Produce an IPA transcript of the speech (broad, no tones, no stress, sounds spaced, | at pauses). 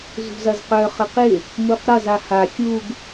z ṳ z ɐ z q œ χ ə q ɪ | m u q ɾ ɐ z a h a xʲ u ɡ